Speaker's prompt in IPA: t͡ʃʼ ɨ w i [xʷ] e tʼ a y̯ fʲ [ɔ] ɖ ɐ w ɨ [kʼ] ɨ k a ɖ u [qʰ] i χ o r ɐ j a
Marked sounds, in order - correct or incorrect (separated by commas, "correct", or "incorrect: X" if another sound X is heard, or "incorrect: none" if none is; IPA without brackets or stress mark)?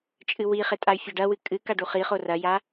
incorrect: χ, correct, correct, incorrect: χ